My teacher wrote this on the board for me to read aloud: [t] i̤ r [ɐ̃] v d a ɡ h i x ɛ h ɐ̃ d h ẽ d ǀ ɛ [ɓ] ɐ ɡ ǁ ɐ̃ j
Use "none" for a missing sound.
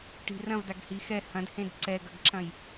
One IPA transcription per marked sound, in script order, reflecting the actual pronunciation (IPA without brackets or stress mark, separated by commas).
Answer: ʈ, ɐ̃, ɡ